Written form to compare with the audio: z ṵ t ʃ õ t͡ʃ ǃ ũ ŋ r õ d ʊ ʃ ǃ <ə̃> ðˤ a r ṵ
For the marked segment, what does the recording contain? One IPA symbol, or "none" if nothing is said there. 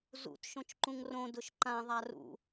ã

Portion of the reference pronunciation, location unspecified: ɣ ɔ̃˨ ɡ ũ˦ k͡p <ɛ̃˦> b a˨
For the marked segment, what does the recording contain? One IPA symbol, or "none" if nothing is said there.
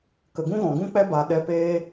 ɛ˦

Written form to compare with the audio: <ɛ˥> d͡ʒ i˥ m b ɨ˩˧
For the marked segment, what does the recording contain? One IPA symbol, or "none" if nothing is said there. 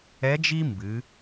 ɛ˧˥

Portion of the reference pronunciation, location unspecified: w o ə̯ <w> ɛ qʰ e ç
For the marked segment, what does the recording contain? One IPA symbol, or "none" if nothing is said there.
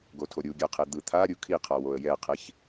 j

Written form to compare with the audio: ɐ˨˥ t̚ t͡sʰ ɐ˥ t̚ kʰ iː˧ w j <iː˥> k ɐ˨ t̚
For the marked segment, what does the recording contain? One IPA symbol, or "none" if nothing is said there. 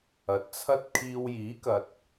iː˨˥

